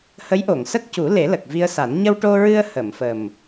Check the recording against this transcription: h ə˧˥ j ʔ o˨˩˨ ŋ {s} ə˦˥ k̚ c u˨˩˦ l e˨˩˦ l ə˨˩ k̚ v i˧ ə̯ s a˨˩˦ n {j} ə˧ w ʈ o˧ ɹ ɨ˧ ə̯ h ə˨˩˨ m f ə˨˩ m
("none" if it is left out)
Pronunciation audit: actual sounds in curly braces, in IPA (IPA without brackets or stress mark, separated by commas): s, ɲ